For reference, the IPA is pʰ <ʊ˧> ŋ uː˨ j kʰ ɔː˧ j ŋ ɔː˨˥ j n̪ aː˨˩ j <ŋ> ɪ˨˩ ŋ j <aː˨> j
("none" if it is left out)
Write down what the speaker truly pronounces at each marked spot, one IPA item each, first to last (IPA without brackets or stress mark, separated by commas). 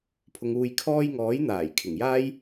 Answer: ʊ˨, kʰ, aː˥